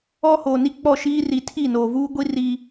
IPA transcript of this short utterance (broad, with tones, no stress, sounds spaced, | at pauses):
ɔ˦ h oː˨ n i˦ k͡p ɔ˦˨ ʃ iː˦ r i˨˦ tʰ i˦˨ n oː˨ v uː˦ ɡʷ i˦ r i˦